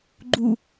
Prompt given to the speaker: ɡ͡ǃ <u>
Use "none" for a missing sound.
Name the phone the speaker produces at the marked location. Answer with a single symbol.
u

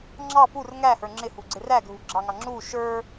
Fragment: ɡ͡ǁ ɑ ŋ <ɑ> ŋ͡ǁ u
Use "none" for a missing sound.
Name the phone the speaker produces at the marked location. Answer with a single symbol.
ɑ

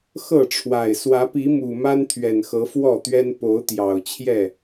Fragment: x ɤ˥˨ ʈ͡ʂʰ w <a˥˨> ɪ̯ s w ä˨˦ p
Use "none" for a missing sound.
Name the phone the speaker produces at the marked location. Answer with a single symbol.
a˨˩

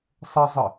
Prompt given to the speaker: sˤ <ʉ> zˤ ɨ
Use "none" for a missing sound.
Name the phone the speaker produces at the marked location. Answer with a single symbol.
ɘ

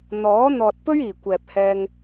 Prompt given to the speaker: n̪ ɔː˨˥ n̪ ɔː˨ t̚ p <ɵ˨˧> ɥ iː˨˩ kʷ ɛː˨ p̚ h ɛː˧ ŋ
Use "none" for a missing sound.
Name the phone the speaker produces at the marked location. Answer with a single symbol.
ɵ˥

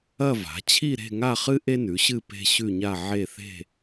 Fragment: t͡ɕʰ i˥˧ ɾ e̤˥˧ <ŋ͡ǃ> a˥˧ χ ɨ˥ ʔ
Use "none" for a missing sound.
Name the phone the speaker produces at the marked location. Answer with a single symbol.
ŋ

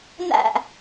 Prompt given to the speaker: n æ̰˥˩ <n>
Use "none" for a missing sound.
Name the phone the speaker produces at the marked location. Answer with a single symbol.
none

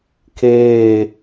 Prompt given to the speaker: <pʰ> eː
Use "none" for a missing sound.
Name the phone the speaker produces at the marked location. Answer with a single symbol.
kʰ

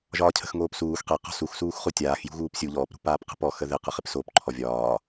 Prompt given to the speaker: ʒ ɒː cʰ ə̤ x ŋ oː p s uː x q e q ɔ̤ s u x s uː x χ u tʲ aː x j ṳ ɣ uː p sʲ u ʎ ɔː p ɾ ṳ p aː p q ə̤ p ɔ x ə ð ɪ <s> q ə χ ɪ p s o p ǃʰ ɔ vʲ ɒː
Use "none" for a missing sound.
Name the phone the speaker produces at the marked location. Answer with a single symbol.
none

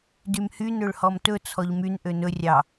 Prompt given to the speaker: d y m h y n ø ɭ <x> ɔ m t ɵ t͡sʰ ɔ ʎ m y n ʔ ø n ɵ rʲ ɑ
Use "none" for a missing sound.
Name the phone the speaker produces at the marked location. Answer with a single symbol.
h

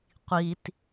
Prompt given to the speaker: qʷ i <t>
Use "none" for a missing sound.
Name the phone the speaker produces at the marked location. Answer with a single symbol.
t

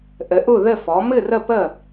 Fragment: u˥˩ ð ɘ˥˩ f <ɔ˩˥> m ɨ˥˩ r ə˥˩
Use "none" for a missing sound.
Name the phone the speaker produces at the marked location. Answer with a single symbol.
ɔ˩˥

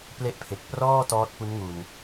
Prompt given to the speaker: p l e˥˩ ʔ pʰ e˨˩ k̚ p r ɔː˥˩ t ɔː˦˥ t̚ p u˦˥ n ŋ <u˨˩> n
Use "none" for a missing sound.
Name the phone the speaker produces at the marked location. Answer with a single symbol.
u˨˩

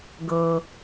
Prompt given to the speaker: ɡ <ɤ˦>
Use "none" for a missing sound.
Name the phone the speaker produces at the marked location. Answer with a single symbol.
ɤ˦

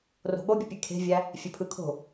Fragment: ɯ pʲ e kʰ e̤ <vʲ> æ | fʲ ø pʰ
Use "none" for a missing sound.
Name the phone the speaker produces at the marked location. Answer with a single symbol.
vʲ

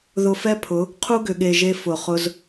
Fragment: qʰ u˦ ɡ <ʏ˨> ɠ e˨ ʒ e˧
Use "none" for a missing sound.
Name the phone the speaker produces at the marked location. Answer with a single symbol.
ʏ˨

